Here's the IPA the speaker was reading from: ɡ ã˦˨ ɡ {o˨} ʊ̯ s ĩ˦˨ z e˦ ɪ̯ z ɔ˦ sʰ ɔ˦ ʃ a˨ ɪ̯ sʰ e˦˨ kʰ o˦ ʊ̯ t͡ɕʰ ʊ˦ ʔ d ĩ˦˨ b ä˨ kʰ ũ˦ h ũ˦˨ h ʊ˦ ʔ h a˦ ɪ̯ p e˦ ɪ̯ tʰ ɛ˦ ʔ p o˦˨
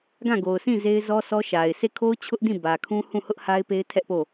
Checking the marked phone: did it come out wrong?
no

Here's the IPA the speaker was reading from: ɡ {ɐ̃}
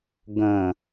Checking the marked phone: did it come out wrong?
no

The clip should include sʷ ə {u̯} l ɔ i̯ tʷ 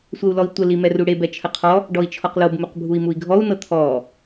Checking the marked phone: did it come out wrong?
no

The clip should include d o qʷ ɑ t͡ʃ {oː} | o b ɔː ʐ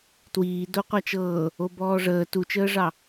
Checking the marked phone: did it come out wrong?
yes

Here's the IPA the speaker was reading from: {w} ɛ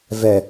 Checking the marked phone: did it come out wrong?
yes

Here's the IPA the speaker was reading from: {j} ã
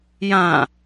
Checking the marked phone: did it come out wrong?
no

